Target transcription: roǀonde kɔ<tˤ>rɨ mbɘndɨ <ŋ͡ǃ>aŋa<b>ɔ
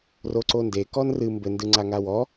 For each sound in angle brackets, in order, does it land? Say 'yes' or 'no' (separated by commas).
no, no, no